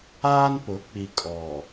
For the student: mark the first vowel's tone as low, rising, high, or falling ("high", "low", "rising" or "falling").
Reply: high